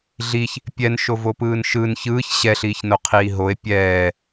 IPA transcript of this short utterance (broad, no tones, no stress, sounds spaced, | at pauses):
ɮ i ç | pʲ ɛ n ʃ o v o p ɯː n ʃ ɯ n ç ɯː ç ɕ ɛ ɬ iː ç n o qʰ iː ɦ o e̯ pʲ ɛː